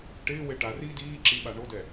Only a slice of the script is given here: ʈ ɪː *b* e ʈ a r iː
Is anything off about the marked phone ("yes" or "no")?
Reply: yes